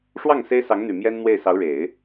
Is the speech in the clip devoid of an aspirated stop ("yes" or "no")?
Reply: yes